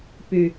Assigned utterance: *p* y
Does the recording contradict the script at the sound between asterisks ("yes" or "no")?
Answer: no